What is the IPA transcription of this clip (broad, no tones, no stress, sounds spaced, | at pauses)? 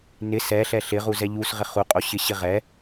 n ɪ s ɛ ɬ ɛ ɬ ɪ ʁ u z ɛ ʎ u s ʁ ɪ χ u qʼ o ɕ ɪ ɕ ɪ ʁ ɛ